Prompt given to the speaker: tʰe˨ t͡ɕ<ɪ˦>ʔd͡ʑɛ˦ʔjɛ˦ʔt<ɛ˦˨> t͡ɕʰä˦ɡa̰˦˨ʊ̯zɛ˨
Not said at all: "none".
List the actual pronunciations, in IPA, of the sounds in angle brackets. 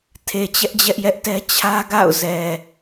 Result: ɛ˦, ɛ˦

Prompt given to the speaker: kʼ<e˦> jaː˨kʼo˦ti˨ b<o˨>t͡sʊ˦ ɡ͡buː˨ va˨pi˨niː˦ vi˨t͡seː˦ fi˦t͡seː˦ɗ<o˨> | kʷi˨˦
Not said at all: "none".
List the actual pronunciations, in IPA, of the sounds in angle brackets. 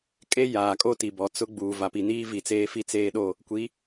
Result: e˦, ɔ˨, o˦˨

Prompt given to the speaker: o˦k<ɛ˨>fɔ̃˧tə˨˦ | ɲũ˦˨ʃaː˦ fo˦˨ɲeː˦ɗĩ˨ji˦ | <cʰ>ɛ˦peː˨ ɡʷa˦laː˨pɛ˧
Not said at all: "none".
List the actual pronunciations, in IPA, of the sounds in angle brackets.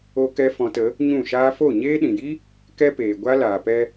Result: ɛ˦, k

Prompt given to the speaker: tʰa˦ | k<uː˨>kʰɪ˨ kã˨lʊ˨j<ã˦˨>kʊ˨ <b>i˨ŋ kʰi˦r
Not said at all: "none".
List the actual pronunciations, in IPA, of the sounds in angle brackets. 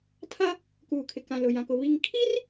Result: uː˨, ã˨, β

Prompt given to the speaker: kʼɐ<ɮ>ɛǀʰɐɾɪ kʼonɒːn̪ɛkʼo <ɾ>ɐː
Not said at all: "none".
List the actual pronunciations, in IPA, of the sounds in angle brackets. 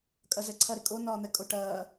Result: z, ʈ

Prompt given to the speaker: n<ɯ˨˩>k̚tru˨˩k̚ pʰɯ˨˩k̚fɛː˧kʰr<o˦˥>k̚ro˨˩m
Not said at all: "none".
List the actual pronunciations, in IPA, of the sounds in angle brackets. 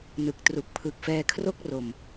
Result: ɯ˨˩, o˥˩

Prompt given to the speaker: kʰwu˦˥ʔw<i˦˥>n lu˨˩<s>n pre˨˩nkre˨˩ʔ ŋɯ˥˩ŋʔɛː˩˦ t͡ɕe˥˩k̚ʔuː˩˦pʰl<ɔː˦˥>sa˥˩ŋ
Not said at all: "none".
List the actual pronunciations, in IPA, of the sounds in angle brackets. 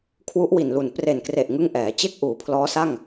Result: i˨˩, none, ɔː˦˥

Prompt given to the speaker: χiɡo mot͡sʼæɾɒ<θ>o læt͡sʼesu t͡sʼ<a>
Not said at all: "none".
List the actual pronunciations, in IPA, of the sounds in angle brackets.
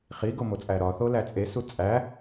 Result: θ, æ

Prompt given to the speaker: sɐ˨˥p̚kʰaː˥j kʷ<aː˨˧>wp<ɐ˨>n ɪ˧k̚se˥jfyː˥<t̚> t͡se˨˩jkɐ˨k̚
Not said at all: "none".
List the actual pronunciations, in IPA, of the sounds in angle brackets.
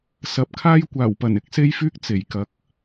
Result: aː˨˩, ɐ˨˩, k̚

